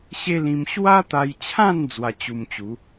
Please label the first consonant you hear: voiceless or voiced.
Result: voiceless